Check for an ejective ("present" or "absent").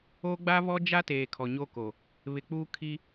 absent